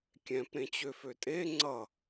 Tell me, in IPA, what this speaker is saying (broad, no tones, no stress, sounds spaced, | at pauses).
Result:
kʲ ɛ̃ p ɾ ẽ t͡ɕ ø f ø tʼ e ŋ͡ǀ ʌ